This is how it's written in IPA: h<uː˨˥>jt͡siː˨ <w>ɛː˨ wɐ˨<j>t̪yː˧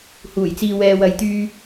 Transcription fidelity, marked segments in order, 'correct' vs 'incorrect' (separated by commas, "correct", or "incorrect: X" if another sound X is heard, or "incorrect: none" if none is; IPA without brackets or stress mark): incorrect: uː˨˩, correct, correct